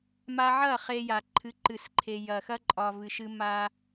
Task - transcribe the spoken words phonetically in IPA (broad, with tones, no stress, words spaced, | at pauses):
ma˧ʕɐ˦˨ χe˧ja˨ǃʰɨ˨˦ ǃɨ˨sǃʰe˨ jɐ˨xɐ˧ǃʼɒ˨ vɨ˨ʃɨ˧ ma˧